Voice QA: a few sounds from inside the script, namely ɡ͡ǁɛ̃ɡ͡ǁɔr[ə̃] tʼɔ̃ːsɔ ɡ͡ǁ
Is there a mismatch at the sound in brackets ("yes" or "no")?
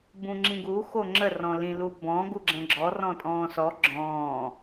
yes